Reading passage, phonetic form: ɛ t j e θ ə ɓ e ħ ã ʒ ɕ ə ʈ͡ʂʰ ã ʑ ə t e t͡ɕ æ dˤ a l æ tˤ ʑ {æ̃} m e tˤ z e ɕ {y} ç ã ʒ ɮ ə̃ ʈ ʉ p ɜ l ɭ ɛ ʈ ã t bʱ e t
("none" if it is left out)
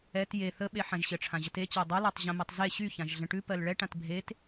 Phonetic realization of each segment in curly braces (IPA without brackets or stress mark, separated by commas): ə̃, y